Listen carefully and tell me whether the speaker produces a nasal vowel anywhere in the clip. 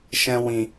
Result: yes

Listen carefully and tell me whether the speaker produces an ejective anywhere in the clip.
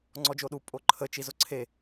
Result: yes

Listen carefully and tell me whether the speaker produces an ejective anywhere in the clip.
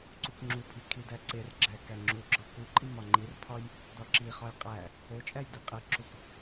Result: yes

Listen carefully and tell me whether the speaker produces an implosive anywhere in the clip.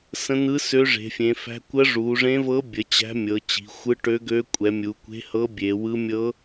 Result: no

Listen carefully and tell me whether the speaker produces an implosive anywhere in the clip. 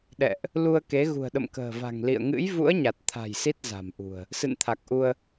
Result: yes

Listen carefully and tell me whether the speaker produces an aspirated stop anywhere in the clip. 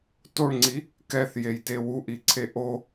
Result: yes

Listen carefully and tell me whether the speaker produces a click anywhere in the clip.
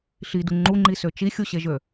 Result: yes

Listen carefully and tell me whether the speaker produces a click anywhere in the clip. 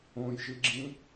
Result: yes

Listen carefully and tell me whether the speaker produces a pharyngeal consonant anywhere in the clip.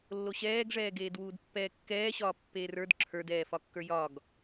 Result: no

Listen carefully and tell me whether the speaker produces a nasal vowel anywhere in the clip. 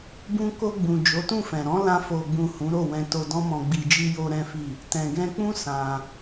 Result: yes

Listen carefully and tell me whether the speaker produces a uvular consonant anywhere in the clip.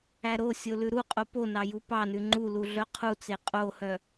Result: yes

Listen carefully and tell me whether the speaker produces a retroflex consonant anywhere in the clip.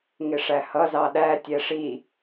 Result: yes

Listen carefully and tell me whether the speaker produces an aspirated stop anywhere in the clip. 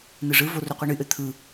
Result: yes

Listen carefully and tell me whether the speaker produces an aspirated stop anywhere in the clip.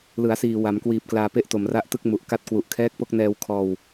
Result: yes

